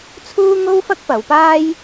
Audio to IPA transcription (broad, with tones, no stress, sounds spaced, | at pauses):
t͡sʰ uː˥ ŋ o˥ w f ɐ˥ k̚ p ɐ˨˧ w p aː˥ j